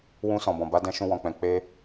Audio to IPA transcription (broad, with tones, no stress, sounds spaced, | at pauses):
w ũ˧ s ɔ̃˨ b ɔ̃˨ b a˨˦ d ɛ̃˧ ʃ ũ˧ w ɔ̃˨ k͡p ɛ̃˨ k͡p e˧